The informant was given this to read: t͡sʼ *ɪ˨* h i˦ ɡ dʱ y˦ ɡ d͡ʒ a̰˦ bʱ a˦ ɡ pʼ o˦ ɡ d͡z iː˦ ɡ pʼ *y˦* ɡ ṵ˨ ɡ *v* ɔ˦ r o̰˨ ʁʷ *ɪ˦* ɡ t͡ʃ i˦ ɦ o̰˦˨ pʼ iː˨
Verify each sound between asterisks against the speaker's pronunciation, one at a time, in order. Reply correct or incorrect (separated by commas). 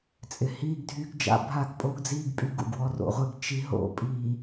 correct, correct, incorrect, correct